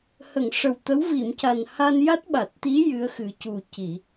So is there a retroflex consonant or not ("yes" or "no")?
yes